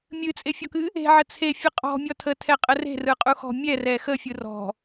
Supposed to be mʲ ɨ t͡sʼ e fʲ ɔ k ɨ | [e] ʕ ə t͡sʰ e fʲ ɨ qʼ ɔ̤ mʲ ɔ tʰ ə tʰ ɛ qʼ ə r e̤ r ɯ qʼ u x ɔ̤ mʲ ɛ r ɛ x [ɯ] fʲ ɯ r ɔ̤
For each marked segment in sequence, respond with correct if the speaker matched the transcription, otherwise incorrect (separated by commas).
incorrect, incorrect